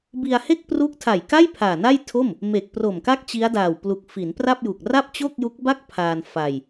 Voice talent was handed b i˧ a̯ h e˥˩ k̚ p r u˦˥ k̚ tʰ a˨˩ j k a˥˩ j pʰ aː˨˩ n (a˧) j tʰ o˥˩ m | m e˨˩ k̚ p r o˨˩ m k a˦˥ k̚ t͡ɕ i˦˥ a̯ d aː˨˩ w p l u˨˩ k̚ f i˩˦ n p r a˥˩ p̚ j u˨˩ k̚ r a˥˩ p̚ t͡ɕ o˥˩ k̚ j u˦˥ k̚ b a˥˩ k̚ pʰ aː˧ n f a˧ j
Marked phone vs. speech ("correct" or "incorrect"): incorrect